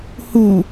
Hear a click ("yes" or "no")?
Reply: no